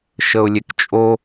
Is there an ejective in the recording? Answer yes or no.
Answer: yes